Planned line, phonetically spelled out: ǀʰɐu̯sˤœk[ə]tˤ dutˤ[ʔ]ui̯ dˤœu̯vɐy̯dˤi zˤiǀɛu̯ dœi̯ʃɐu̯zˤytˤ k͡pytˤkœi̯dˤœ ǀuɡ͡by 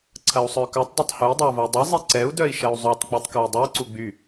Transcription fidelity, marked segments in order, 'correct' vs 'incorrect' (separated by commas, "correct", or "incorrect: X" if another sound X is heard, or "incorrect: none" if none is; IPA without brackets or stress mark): incorrect: œ, incorrect: h